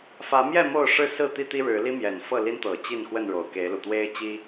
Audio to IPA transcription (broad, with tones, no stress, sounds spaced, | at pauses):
f ä˨˦ m j ɛ˥˨ m o˥˨ ʊ̯ ʂ ɻ̩˥˨ s ɹ̩˥˨ t̪ i˦ t̪ i˦ ɻ ɻ̩˨˦ l i˦ m j ɛ˨˩ n f ɤ˥˨ l i˦ n t̪ ɤ˨˩ t͡ɕ i˥˨ n x w ə˥˨ n ɻ o˨˩ ʊ̯ k e˨˦ ɪ̯ l u˨˩ t̪ w e˦ ɪ̯ t͡ɕ i˦